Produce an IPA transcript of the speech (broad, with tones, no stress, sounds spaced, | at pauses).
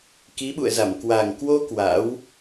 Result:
k i˨˦ ɓ ṵ˧˨ ə̯ z a˧˩ m k w a˨˩ ŋ k w o˧ k w a̰˧˥ w